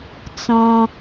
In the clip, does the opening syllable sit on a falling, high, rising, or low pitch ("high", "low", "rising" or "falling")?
low